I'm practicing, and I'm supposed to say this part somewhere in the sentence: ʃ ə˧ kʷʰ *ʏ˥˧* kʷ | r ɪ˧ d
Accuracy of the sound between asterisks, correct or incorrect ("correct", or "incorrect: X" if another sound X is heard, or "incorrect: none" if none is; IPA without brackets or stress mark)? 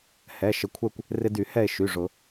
incorrect: ɛ˥˧